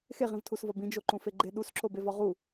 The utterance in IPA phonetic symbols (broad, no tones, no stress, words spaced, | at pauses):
xeʁĩvtʰusvɒ bĩd͡ʒoǃũfe ɡ͡ǃe ɗusǁobevɒ ʁu